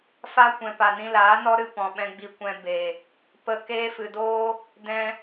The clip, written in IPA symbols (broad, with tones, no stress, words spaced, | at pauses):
fa˦ kʷɛ̃˨pa˨ nĩ˧laː˨˦nɔ˦ ɾɨ˧pɔ̃˨ɓɛ̃˧ ɡ͡bi˧kʷɛ̃˧ beː˨ | pə˧ keː˧fɨ˨doː˦ | dɛ̃˧